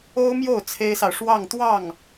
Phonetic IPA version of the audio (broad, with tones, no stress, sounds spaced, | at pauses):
o˥ ʊ̯ m j o˥˩ ʊ̯ t͡sʰ e˥ ɪ̯ s ɑ˨ ʊ̯ ʂ w ɑ˥˧ ŋ t̪ w ɑ˥˩ ŋ